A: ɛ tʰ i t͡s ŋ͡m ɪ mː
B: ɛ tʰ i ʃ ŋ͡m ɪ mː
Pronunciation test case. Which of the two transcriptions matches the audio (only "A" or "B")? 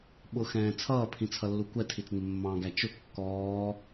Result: A